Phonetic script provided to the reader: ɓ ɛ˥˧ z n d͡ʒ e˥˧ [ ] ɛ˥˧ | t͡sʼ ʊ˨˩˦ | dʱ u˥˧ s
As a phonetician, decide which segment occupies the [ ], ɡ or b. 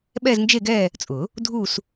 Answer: ɡ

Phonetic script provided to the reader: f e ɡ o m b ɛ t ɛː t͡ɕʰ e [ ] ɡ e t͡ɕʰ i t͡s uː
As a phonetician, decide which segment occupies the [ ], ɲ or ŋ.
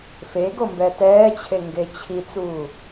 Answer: ŋ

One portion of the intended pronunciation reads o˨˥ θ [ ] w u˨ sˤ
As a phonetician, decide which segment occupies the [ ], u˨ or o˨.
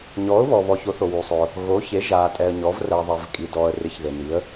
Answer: o˨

